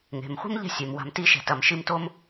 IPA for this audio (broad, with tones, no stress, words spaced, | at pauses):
ŋe̤˩mχʷi̤˥mʎɛ̤˦sʲe˩m wa̤˨mti˥ʃɛ̤˩tɐ˩m ʃi˦mto˥m